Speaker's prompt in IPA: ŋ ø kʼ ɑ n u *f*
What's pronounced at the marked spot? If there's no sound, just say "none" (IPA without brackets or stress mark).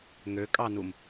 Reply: m